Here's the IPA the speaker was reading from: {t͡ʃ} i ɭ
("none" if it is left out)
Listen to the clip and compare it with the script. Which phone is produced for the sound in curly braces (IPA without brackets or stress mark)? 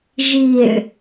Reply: ʒ